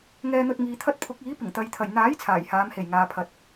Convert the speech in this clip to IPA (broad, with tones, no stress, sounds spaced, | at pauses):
ŋ ɛː˧ n̪ ɵ˧ t̚ ŋ iː˨ t̪ʰ ɐ˥ t̚ pʰ ʊ˨˥ k̚ iː˨˥ p ɪ˨˩ ŋ t̪ ɐ˨ j t̪ʰ ɐ˨˩ j n̪ aː˨˥ j t͡sʰ aː˨˩ j h aː˨˧ m h e˨˩ j ŋ aː˨ pʰ ɐ˨ t̚